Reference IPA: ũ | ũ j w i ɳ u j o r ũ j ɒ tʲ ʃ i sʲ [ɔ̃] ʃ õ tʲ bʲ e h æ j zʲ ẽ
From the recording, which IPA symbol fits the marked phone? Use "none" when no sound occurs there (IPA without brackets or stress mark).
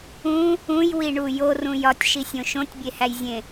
õ